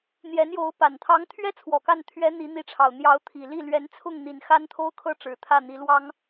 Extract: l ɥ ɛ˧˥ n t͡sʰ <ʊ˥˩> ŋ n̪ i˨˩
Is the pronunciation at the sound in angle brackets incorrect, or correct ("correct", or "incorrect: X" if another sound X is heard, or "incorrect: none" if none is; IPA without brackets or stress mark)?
correct